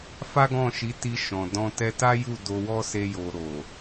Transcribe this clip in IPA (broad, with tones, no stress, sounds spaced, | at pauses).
f a˦ ɡ ɔ̃˦˨ ʃ i˨˦ t i˧ ʃ ɔ̃˨ d ɔ̃˧ t ɛ˧ t a˦ j u˦˨ d o˧ w ɔ˦ s e˧ j o˨ ɾ o˨